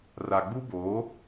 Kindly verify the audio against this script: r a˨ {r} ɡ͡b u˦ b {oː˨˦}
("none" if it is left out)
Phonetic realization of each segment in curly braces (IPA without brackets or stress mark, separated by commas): none, oː˨˦